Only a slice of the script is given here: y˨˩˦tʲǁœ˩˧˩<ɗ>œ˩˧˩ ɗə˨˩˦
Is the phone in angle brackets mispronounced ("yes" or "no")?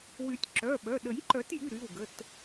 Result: yes